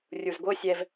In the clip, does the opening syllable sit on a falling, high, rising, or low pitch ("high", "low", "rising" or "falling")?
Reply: low